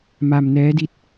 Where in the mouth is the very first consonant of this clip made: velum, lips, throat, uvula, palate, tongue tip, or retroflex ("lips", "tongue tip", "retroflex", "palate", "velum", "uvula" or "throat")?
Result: lips